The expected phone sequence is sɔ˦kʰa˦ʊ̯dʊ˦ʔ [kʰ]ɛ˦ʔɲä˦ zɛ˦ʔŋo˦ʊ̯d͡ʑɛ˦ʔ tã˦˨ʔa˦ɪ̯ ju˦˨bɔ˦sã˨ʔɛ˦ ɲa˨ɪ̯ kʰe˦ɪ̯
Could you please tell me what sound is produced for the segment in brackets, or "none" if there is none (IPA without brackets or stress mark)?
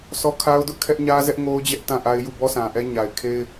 kʰ